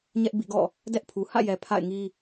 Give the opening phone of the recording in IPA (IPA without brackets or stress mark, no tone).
ɲ